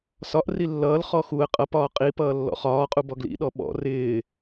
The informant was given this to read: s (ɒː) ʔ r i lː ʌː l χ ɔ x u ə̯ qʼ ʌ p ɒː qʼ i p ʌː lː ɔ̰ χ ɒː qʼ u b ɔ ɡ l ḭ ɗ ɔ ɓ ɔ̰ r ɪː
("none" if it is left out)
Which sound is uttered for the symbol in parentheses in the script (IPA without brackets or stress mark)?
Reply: ɒ